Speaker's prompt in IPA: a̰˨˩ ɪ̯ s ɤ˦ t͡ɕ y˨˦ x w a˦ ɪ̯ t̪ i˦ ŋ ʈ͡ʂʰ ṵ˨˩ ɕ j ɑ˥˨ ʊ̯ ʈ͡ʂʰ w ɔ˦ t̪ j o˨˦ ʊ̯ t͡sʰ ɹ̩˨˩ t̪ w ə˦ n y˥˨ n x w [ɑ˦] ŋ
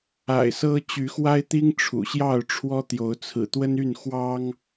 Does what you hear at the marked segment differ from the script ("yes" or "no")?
no